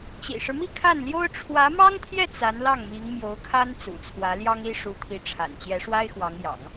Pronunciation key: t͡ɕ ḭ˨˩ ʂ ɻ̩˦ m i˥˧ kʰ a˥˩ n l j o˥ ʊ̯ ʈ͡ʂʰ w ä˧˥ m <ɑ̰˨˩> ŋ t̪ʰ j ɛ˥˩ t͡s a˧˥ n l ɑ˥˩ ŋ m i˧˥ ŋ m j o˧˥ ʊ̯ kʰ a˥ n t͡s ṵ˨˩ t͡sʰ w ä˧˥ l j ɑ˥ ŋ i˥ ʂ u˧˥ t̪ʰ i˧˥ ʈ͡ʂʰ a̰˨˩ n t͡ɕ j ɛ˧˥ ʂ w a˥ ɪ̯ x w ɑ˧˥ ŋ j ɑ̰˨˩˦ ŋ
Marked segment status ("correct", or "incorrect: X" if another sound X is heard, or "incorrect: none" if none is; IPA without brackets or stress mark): incorrect: ɑ˥